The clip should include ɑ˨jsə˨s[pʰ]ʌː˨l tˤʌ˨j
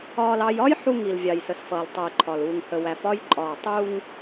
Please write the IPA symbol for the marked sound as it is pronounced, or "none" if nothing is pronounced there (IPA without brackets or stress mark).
f